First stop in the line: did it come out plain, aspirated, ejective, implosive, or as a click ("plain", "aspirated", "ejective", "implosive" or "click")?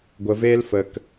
plain